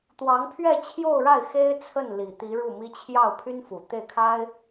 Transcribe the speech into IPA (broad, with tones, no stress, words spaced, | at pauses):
t̪wɑ˧˥ŋpʰɥɛ˥˧t͡ɕʰjo˥˧ʊ̯ɻa˥˩ɪ̯ xe˥ɪ̯t͡sʰə˥˩n li˨˩t̪i˧˥ɻu˥˩mi˥ t͡ɕʰjɑ˥˩ʊ̯pʰy˥n fu˨˩t̪e˥˩ɪ̯kʰa˥ɪ̯